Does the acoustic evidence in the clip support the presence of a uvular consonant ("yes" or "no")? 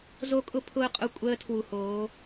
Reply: yes